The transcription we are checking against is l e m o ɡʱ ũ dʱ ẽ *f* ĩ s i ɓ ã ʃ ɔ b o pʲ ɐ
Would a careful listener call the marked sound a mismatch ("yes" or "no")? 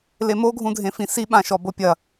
no